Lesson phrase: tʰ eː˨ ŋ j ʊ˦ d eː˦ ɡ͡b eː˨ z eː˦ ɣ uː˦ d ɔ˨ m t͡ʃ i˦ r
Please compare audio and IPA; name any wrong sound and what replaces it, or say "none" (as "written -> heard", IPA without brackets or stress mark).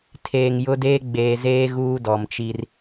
none